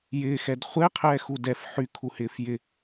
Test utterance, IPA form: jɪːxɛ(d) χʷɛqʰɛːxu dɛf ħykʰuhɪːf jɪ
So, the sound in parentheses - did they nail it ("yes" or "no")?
yes